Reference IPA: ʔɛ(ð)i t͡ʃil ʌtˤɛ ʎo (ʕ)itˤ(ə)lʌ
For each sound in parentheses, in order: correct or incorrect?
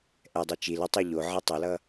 incorrect: dˤ, correct, incorrect: ʌ

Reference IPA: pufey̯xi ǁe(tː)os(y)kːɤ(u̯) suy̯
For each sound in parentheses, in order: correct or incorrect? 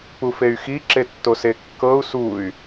correct, incorrect: e, correct

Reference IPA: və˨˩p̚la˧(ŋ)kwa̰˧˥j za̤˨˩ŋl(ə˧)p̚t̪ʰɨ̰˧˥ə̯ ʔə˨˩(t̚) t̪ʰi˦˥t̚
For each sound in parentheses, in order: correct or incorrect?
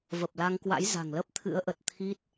correct, incorrect: ə˦˥, correct

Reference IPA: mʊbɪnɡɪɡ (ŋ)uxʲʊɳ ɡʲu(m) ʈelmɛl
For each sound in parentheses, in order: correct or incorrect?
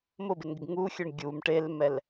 correct, correct

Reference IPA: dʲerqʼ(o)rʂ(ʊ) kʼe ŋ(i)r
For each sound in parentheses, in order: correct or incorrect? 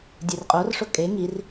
correct, correct, correct

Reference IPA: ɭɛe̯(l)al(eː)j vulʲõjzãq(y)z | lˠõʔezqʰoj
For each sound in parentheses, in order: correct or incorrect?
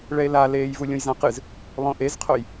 correct, correct, incorrect: ɨ

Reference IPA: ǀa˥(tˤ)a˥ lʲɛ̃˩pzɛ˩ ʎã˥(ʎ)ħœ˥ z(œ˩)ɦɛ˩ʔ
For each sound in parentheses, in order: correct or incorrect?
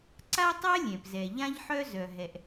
correct, correct, correct

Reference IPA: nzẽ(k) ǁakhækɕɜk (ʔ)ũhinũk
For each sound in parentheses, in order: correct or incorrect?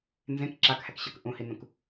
correct, correct

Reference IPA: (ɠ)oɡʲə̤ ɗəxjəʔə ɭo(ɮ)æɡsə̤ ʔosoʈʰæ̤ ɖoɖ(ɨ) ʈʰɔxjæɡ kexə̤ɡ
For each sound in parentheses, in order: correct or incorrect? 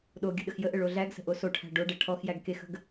incorrect: ɗ, correct, incorrect: ɛ

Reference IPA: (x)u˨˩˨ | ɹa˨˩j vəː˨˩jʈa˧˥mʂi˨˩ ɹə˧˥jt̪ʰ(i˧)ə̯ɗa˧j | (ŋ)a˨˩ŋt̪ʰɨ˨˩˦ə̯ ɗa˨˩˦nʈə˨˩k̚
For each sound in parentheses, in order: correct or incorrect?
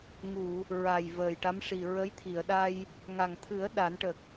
incorrect: ŋ, incorrect: i˨˩˨, correct

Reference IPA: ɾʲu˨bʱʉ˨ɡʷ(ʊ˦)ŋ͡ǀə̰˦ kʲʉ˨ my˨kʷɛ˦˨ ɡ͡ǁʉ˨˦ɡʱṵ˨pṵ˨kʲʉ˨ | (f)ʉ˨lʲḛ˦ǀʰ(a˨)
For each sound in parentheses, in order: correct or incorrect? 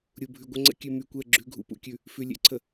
incorrect: ə˦, correct, incorrect: ə˨

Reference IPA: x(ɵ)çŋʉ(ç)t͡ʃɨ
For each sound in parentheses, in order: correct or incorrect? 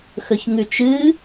correct, incorrect: none

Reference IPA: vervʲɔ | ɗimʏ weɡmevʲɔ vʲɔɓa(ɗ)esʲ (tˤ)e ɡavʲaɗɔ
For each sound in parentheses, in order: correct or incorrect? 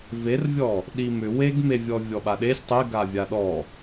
correct, correct

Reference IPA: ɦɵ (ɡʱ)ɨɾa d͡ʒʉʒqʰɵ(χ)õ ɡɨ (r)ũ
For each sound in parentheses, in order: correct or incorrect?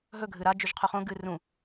correct, correct, correct

